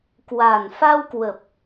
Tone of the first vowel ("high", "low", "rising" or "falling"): low